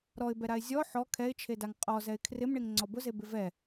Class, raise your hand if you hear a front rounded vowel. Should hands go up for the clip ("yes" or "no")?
no